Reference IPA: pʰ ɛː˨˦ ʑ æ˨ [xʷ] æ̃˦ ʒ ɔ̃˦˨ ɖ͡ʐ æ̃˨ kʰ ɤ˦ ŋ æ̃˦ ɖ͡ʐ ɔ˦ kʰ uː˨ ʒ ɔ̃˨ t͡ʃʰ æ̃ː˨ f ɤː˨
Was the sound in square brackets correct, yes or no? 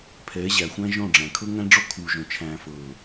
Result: yes